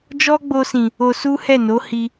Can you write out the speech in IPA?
d͡ʒ ɔ˦ ɡ͡b o˧ s ĩ˨ | o˧ s u˦ h ɛ˦˨ n o˨˦ h i˧

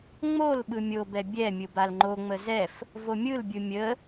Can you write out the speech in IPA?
ŋ͡m o l ɓ ɯ mʲ o b ɛ bʲ ɛ mʲ ɯ b a l ŋ͡ǃ o ŋ͡m ə z ɛ f | v o mʲ ɯ l bʲ ɯ mʲ ə

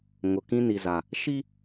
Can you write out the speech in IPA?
ŋ ʊ˨ k ĩ˦ n i˨ z a˨ | ʃ i˦

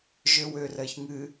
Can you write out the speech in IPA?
ʒ ø w ø r ɜ ç ŋ ɨ

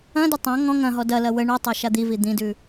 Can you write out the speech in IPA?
ɐ̃ d ʏ tˤ ɐ̃ ŋ ɔ̃ ŋ ɐ̃ ɦ ɔ d ɐ l ɐ w ə ɳ u tˤ a ʃ a d̪ i v i d̪ ĩ d ʉ

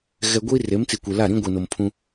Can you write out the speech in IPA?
ɣ ɛ˨ ɡʷ i˦ r e˨˦ m t͡s i˨ kʷ e˨ l a˦˨ ɾ ĩ˦ ɡʷ i˨ n o˨ m pʰ ũ˦

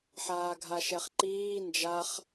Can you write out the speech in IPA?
ħ aː ɡʱ a ʃ ɛ χ ǃ iː n d͡ʒ a χ

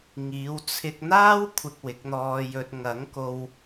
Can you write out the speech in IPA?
ŋ iː˨˧ w t͡sʰ ɪ˧ k̚ n̪ aː˥ w kʷʰ ɪ˧ k̚ w ɪ˨˥ k̚ n̪ ɔː˧ j ɵ˧ t̚ ŋ ɐ˨˥ ŋ k o˧ w

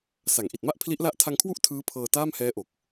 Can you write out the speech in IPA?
s a˩˦ ŋ ʔ i˨˩ t̚ m a˥˩ ʔ pʰ l i˦˥ ʔ l a˥˩ ʔ tʰ a˧ ŋ kʰ w u˥˩ ʔ tʰ ɯː˦˥ pʰ ɤː˧ t aː˥˩ m h ɛː˦˥ ʔ o˨˩ k̚

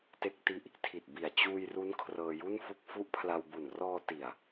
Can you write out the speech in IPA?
t e˦˥ k̚ t i˦˥ ʔ | tʰ i˨˩ t̚ b i˨˩ a̯ t͡ɕ uː˧ j r u˦˥ n kʰ r ɤː˧ j u˥˩ n f u˦˥ k̚ f u˦˥ ʔ pʰ l a˧ w b u˨˩ n r ɔː˧ t i˨˩ a̯

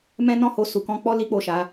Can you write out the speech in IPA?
m ɛ̃˦ n ɔ̃˦˨ h o˧ s u˨ k ɔ̃˧ k͡p ɔ˦ l i˦ k͡p o˦˨ ʃ a˨˦

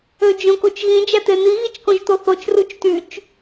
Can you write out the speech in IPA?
ø d͡ʒ õ k o t͡ʃ ɣ ĩ d͡ʒ æ t̪ e n̪ i ɣ i t͡ʃ k õ ʒ t̪ o θ o t͡ʃ r u t͡ʃ t y t͡ʃ

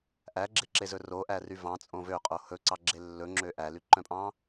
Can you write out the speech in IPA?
ʔ æ ɡ͡ǁ e ǁ e z ɵ r o ʔ æ r y v ɑ̃ t͡sʼ õ v ø qʼ o h ɵ ǀ ɑ ɡ͡ǁ e lː ɵ ŋ͡ǁ ø ʔ æ l y ǃ œ̃ pʼ ɑ̃

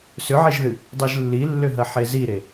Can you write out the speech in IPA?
s ʏ ʕ e ʒ ð ɨ | dˤ ɨ ʒ lː i lː ʏ ɦ ɐ ħ e z i ɾ e

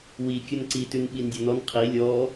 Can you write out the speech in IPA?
w i kʲ ɵ n ǀ i t ʉ n ɓ i n dʲ ɔ n ɔ n qʰ i lʲ ɔ

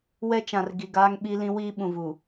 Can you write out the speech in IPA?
w ɛ˦ t͡ʃ ã˨ r ɡ i˨ ɡ aː˦ ŋ ɓ i˦ l ĩ˦ w iː˦ ɓ ũ˨ v u˨

